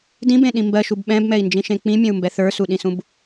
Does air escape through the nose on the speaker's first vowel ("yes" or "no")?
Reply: yes